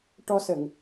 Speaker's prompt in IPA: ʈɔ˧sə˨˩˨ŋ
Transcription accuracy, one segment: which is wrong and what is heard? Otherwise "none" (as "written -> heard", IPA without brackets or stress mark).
none